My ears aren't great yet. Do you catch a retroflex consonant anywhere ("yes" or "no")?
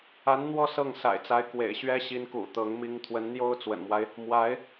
no